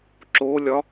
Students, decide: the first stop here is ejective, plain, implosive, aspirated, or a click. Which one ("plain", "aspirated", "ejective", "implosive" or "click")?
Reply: click